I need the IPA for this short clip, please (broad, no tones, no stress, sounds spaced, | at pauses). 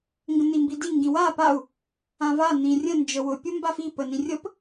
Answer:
ŋ ɡ ə̃ n i m b i d i ŋ ɡ ĩ w a p a u̯ | ã v a n ĩ rʲ ə̃ n d͡ʒ ə w ʊ pʲ ʊ m b a f i p ə n ĩ rʲ ə p